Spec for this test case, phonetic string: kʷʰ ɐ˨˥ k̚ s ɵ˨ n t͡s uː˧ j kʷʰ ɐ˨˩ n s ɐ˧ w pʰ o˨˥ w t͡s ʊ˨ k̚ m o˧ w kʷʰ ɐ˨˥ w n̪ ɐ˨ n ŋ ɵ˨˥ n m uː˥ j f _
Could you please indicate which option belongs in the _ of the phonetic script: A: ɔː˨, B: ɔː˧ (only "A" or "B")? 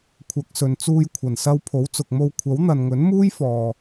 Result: A